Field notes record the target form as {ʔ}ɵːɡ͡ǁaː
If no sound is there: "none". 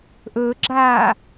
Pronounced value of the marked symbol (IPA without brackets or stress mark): ʔ